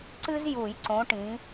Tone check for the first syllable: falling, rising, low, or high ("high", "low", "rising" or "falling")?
high